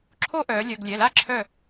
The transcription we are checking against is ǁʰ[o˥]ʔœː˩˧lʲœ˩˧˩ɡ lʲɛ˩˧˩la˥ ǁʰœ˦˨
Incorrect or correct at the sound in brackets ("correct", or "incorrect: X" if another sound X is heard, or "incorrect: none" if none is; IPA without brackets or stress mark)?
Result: correct